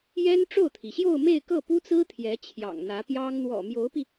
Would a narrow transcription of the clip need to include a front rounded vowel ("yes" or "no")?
no